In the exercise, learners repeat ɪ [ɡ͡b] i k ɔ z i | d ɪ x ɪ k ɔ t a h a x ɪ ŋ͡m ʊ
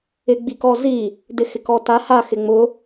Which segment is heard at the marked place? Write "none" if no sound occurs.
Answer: ɡ͡b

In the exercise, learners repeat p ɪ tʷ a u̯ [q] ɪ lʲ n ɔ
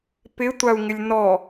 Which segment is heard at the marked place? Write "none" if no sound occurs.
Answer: ŋ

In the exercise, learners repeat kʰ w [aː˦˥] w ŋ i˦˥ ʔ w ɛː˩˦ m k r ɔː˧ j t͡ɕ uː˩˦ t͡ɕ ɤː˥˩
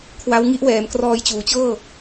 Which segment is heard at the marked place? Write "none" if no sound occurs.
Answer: a˦˥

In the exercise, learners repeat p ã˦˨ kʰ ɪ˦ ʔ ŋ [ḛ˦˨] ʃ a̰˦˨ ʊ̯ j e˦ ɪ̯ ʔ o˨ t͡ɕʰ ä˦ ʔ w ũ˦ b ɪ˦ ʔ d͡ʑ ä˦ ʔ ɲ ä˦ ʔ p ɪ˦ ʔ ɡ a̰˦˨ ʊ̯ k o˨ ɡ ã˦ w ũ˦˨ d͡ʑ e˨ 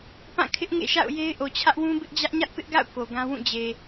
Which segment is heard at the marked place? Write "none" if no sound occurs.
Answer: ḛ˦˨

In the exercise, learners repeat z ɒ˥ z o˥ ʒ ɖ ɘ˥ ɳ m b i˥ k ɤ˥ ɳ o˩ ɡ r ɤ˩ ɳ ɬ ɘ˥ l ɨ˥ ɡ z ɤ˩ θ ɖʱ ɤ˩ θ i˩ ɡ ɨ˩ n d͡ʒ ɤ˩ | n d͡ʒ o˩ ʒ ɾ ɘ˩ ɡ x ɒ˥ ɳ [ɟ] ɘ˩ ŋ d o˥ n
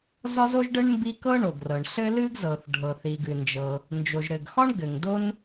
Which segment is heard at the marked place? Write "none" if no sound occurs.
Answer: ɡ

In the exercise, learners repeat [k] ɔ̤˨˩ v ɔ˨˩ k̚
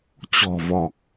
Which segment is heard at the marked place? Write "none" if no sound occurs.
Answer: t͡ɕ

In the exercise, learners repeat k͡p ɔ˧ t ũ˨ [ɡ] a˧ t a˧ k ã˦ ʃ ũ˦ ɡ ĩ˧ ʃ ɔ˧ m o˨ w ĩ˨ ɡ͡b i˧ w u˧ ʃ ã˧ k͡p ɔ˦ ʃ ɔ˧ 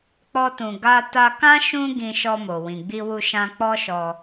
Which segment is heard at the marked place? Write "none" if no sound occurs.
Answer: ɡ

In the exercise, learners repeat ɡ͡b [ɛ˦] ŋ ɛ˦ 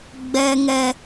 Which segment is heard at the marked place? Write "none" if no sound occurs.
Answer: ɛ˦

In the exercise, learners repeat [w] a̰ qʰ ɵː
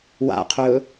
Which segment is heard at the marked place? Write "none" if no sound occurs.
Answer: w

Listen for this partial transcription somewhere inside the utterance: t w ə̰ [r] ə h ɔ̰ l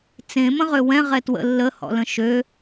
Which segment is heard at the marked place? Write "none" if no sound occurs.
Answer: lː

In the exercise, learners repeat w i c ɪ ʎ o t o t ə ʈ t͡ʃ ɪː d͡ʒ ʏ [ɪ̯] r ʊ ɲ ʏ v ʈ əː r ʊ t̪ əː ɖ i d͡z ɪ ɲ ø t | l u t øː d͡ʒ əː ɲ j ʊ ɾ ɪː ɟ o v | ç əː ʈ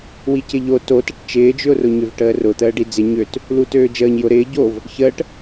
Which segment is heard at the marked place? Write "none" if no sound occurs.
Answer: ʊ̯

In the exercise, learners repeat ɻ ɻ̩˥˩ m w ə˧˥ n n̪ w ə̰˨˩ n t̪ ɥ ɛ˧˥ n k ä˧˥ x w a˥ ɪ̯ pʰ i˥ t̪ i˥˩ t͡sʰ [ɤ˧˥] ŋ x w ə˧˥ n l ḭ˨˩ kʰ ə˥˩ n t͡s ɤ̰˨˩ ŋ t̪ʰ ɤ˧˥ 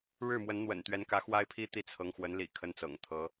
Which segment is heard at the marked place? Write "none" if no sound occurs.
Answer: ɤ˧˥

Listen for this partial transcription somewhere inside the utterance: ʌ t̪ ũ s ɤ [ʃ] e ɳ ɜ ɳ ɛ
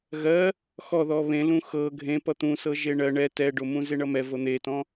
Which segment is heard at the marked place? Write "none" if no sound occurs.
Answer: ʒ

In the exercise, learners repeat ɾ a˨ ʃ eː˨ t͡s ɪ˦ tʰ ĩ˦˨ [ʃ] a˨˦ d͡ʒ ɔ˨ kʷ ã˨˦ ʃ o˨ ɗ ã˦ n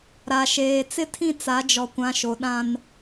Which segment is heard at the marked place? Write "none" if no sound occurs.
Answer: t͡s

